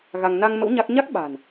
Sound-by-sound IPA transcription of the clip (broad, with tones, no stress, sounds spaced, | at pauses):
ɣ a˧ ŋ n a˧ ŋ m ə̰˧˥ w ɲ a˦˥ k̚ ɲ a˦˥ k̚ ɓ a̤˨˩ n